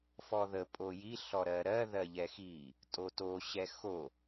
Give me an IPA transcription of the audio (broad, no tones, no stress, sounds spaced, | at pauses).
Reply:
f ɔ ð ə pʼ o j i ɬ ɔ ɾ ɜ ɾ ɜ ð ɜ ʎ ɛ x i | tʼ o t o ɕ ɛ x o